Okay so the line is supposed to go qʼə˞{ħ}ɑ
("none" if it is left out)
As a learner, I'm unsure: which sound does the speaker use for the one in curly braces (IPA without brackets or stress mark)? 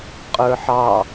ħ